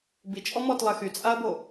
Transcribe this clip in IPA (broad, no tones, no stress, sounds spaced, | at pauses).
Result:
b i t͡ʃʼ ɔ m ɔ t lˠ ɛ x y t͡sʼ a ɐ̯ b o